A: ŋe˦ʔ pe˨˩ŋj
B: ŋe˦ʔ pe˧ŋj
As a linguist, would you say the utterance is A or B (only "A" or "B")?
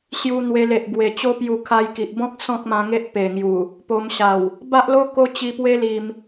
A